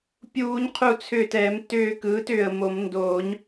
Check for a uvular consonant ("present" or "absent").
present